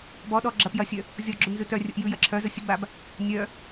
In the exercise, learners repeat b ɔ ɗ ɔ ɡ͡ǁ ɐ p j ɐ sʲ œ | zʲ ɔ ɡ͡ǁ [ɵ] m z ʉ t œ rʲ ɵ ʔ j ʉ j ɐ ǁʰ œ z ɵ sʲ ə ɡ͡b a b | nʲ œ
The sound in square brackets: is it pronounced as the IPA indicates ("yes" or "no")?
yes